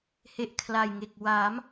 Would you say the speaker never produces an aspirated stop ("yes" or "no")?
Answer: no